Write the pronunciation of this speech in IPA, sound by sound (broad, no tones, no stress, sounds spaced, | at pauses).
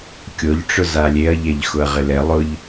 kʲ o ʎ ʈ͡ʂ ʊ z a lʲ e ɐ̯ ʎ ɛ ʎ x ʊ ɐ̯ ʁ ɪ l ɛ lˠ ʊ ʎ